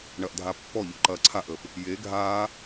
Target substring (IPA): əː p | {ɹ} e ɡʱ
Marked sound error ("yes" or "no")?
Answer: yes